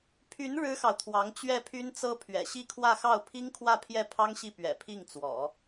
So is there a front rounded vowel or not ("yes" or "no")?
yes